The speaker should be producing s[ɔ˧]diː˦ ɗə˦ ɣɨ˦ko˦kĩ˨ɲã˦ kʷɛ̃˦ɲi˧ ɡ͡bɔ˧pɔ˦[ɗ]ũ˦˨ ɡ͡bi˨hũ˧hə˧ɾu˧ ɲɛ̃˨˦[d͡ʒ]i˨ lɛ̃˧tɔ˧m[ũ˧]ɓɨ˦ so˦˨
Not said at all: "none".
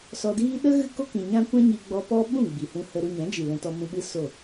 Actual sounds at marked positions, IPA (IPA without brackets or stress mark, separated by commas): ɔ˧, ɓ, d͡ʒ, ũ˧